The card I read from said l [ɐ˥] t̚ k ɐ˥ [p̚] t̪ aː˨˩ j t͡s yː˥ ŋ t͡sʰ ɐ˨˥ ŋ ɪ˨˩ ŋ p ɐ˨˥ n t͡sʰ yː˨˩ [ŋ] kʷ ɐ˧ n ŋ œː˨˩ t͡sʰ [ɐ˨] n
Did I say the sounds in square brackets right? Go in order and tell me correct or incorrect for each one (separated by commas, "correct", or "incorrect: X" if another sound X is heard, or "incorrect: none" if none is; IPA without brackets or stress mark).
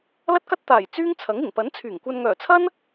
correct, incorrect: t̚, correct, incorrect: ɐ˥